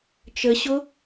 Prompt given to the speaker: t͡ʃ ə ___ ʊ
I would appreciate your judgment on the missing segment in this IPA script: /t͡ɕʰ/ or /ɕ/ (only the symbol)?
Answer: ɕ